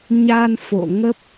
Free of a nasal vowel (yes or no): yes